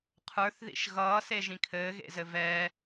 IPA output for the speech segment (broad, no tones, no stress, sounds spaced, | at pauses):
qʰ ə˞ θ ð ḭ ʃ ɣ ʌː s e ʒ ĩ kʰ ɘː ɣ ḛ z ɘ v ɛ